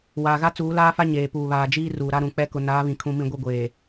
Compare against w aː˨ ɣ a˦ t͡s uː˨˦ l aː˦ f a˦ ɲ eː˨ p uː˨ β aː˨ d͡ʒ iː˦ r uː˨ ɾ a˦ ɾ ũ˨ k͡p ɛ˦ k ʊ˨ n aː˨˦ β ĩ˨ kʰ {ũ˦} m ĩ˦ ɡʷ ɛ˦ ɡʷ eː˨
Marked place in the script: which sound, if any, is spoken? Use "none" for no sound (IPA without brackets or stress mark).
ũ˦